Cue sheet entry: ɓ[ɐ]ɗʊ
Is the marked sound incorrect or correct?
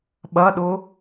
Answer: correct